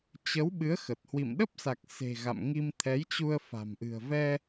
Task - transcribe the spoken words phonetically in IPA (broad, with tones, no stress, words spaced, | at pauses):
t͡ɕə˨˦w ɓɨ˨˦ə̯xə˨˩t̚hwḭ˧˨m ɗə˦˥p̚sa˨˩k̚ se̤˨˩ ɣa̰˧˨mŋi˧mt̪ʰɛ˨˦jt͡ɕu˧ə̯ fa̤˨˩mʔɨ̤˨˩ə̯vɛ˧